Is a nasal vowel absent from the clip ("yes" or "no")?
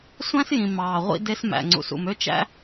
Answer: no